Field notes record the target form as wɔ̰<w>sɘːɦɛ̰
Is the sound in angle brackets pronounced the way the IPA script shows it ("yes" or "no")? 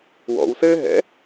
yes